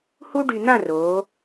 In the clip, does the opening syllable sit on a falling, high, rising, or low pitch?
high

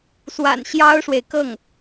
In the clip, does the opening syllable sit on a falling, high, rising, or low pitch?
low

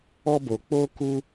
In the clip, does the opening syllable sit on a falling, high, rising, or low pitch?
high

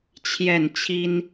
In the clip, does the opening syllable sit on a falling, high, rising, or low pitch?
falling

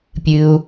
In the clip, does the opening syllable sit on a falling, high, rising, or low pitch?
low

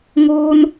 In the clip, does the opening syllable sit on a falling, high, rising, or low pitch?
high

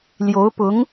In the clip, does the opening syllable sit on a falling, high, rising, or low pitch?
rising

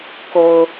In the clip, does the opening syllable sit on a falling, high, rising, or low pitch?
low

